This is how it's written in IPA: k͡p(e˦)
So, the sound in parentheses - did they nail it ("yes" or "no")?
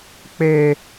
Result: yes